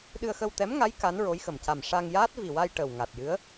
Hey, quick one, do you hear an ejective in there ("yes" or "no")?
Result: no